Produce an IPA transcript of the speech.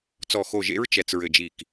t͡s ɔ˧˩ x o˧˩ ʒ ḛ˧˥ ɹ t͡ʃ ɛ˧˩ t͡s ɹ ɘ˧˩ d͡ʒ i˧˩ k

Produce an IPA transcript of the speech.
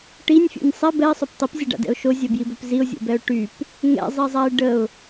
ʈ i nʲ fʲ ṵ nʲ sˤ ɛ b ɛ ɪ̯ sˤ œ p tˤ i p zʲ ə ɖ a̰ d ɛ̰ ʊ̯ ʃ o zʲ œ b j i b œ p z i ʊ̯ zʲ ṵ b ɛ ʊ̯ ʈ y p | ŋ ɛ̰ zˤ i zˤ a ɪ̯ ɖ ə ʊ̯

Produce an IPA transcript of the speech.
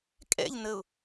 kʼ ɛ̰ ʎ n ə ʊ̯

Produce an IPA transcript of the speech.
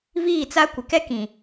v iː˦˨ t͡s a˦ kʷ ɪ˨ k ɛ˦ k ĩ˨

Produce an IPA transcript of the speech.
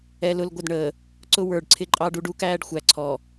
ɛ˨ l ʊ˦˨ l ɡʷ ə˦˨ d ɳ əː˨ | ǀ ʊ˦ w ə˞˨ ɖ ǀʰ ɪ˦ ǃʼ ɑ˦ ɖ u˦ ɖ u˦ k æː˦ ɖ xʷ æ˨ ǀʰ ɔ˨

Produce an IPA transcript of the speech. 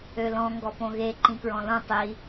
ø l ɔ̃ ŋ ɡ ɔ p õ ɣ e ǃ ĩ k ɹ ɔ̃ l õ tˤ i

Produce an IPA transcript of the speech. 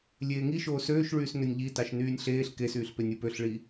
lʲ eː ŋ i ʃ oː s øː ʃ ɭ yː s n ø nʲ ʎ i t ɑ ʃ n yː nʲ ɬ eː ɬ k e s yː ɬ p e nʲ ɯ p ø ɬ ɭ i

